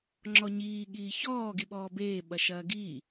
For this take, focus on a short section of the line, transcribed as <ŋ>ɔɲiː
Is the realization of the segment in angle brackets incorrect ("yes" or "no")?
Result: yes